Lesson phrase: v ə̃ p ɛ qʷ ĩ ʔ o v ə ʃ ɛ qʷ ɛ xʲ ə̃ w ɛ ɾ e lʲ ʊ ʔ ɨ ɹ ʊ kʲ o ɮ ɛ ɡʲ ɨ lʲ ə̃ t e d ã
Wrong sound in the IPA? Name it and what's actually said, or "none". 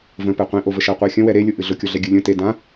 ɹ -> ɮ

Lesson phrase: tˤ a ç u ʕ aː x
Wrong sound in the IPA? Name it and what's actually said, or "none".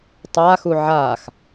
ç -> x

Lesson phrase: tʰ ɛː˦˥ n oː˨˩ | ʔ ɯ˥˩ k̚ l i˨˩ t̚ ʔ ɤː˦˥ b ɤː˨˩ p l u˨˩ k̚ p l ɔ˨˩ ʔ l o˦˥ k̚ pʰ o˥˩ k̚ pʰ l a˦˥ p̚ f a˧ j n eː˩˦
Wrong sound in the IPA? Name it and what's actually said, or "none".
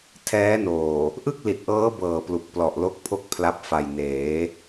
none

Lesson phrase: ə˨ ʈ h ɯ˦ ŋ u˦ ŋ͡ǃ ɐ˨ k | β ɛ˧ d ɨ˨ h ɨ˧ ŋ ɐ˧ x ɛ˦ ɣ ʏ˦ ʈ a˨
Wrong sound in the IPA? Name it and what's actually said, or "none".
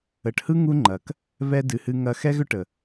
a˨ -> ə˨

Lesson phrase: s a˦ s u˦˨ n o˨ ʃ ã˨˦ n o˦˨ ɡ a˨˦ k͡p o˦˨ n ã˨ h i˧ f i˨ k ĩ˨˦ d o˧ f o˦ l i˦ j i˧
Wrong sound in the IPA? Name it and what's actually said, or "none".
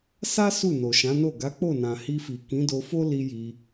none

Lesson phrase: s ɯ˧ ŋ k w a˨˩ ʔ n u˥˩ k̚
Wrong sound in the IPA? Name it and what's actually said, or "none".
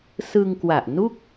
none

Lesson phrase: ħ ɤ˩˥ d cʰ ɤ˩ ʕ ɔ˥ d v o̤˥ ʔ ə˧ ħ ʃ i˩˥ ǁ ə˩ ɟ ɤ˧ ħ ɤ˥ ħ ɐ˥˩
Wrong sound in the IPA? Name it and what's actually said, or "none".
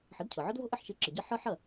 none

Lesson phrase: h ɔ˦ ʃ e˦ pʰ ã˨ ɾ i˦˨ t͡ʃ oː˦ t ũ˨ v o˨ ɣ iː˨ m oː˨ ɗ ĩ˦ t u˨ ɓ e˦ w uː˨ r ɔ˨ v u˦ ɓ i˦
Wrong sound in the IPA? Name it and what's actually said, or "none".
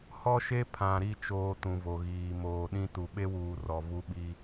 none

